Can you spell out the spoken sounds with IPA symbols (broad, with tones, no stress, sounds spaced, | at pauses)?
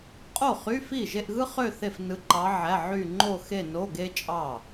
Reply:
qʼ o˥˩ χ y˧˥˧ f i˥˩ ʒ e˥˧ ʔ ɣ ɯ˥ χ ø˥˧ θ e˥˩ f n ɯ˧˥ ǃ ɑ˧˥ ʕ æ˧˥˧ ʕ y˥˧ ŋ͡ǃ o˥˧ x e˥˧ n o˧˥˧ ɡ e˥ t͡ʃʼ ɑ˥˩